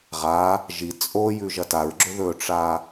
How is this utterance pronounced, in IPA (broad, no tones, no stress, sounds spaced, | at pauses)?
ʁ a | ʒ i t͡sʼ o j ʉ ʒ ɐ t a ɹ ɡ͡ǁ ɵ ð ɵ ʈ͡ʂ a